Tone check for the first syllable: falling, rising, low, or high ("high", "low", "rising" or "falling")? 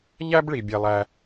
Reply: high